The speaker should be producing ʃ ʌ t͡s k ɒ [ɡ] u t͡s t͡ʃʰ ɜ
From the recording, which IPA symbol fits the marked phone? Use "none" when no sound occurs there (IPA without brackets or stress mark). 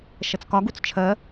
ɡ